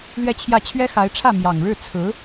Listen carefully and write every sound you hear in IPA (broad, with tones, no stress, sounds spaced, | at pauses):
l ɥ ɛ˥˧ t͡ɕʰ j ä˥˩ t͡ɕʰ ɥ ɛ˥ x a˧˥ ɪ̯ ʈ͡ʂʰ ä˥˩ m j ɑ˨˩ ŋ ɻ ɻ̩˥˩ t͡sʰ ɹ̩˧˥